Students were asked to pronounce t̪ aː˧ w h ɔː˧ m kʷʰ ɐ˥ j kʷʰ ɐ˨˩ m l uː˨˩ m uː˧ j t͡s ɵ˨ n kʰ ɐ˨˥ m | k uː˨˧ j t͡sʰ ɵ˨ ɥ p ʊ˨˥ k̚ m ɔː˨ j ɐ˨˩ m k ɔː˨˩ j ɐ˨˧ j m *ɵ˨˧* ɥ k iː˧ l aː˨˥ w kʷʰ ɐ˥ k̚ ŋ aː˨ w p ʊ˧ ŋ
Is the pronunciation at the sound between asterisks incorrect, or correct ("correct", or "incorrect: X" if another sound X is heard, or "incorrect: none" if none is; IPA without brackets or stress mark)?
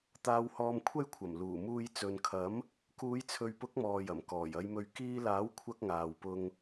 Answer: correct